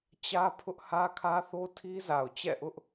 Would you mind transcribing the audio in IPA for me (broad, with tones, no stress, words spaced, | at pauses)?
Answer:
t͡ɕä˦ pʰʊ˦ʔ hä˦kʰä˦θo˦ tʰi˦za˨ʊ̯ t͡ɕɛ̰˦˨ʔʊ˦ʔ